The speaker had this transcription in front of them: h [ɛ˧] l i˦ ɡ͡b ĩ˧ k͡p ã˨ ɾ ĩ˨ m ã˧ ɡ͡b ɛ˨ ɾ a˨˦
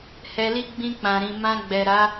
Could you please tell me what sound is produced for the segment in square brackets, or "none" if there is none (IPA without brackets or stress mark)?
ɛ˧